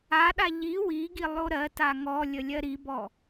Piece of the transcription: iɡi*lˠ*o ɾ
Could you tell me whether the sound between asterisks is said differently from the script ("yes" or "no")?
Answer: no